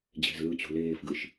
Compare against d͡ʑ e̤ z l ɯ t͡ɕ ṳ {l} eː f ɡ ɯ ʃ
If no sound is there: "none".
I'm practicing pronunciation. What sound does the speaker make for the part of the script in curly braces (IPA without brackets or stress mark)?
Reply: l